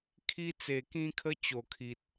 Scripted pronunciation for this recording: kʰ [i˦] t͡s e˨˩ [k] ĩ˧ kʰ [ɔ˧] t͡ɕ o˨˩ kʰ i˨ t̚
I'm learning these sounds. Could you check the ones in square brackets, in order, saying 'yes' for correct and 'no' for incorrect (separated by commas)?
no, yes, no